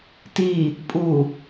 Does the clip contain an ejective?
yes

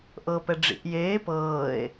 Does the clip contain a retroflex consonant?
yes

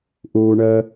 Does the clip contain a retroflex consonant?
yes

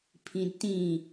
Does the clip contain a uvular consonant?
no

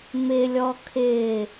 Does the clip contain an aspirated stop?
yes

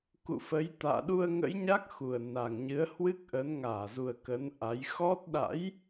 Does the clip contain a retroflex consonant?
no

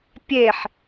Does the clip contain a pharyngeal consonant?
yes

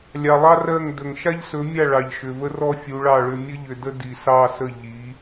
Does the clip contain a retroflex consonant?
yes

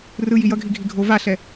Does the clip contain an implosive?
no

